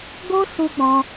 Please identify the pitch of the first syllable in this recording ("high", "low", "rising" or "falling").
high